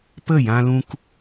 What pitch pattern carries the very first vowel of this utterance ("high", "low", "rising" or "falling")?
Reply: falling